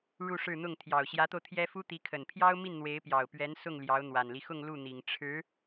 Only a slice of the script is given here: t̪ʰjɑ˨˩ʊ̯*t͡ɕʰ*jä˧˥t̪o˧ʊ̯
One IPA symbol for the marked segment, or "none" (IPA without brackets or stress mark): ɕ